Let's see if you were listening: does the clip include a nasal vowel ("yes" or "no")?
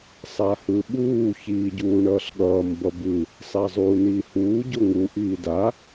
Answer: no